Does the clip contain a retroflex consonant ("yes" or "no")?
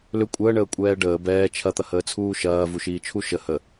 yes